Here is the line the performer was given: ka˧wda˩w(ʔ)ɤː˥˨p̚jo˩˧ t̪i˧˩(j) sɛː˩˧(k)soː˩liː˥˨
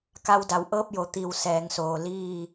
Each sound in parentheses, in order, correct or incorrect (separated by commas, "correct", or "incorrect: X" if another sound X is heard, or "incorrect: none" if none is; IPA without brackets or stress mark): correct, incorrect: w, incorrect: ŋ